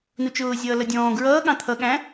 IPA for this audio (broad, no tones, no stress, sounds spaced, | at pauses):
n u t͡ʃ ʊː zʲ ʌː l ʌ dʲ ɔ̃ː ɡ ɹ ʌː ɠ ɑ̃ t̪ʰ ʌ ɠ æ̃